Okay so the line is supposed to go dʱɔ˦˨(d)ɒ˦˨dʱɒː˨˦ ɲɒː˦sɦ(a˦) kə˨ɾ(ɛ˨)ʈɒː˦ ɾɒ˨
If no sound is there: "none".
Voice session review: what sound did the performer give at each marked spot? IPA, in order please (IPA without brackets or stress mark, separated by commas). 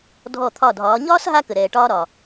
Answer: t̪ʰ, a˧, ɛː˨